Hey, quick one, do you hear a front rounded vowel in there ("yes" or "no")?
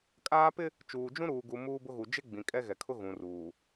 no